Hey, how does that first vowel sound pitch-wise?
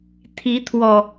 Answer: rising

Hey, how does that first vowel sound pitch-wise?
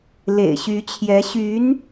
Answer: low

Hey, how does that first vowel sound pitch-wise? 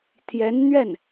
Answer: rising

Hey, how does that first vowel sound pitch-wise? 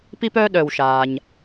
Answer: high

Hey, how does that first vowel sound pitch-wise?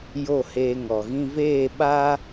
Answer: falling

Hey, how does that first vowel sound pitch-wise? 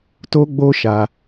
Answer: high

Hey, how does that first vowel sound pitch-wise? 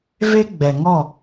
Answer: high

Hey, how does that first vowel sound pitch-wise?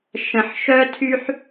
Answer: low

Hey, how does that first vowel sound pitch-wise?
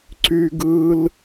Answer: high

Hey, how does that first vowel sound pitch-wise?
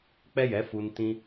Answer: high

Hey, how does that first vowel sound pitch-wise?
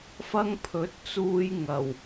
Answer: high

